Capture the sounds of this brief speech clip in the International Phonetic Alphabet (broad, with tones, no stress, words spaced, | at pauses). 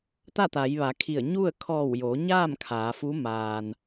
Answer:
t̪a˥˨t̪a˩˧jʋa˩˧kʰi˧˩ə̯ ɲu˥˨ə̯ kʰɔː˧˩wjoː˩˧ ɲaː˥˨m kʰaː˩˧fu˧˥ maː˧n